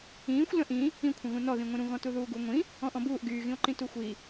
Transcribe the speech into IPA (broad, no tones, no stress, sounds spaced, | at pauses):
ĩː xʷ l ə̃ ʔ ĩ | ĩ kʷʰ ə̃ ɣ ũ n ɔ ð ĩ ŋʷ ĩ ɾ ũ ɣ ɔ̃ t u ð uː ɡ u ŋʷ ĩ | ɔ̃ ʔ ɔ̃ b uː ʔ ɡ yː ɣ ĩ o̯ ǃ ĩ t u xʷ i